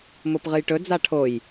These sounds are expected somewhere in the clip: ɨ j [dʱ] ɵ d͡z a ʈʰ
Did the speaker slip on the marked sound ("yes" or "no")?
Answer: yes